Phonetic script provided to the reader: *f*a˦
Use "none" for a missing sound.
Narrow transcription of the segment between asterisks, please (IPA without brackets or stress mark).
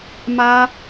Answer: m